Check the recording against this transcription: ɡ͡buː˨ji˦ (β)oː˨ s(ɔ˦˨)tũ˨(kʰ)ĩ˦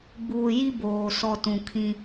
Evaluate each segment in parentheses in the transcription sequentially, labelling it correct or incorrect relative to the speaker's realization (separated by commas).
incorrect, correct, correct